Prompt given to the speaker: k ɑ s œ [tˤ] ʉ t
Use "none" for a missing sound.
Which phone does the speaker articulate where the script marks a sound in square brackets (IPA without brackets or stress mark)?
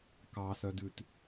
d